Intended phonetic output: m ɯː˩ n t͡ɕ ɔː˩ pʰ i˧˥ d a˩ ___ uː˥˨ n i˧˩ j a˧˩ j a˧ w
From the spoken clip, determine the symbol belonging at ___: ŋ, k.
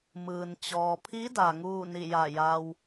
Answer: ŋ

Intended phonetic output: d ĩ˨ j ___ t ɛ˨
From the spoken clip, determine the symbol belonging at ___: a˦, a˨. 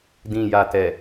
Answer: a˨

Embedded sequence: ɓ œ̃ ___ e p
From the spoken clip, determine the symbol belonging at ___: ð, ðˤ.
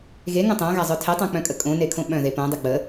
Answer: ð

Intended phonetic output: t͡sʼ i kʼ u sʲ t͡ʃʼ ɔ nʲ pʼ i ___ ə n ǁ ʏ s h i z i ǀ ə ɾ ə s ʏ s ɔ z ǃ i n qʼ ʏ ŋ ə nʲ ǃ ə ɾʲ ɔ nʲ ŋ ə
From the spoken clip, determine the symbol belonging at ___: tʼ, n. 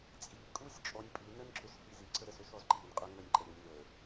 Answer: n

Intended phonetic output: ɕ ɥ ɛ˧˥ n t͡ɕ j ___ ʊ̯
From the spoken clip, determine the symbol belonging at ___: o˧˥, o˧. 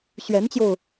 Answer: o˧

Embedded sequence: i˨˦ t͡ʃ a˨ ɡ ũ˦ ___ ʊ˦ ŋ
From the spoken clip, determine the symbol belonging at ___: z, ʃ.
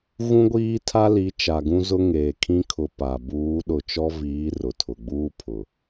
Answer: z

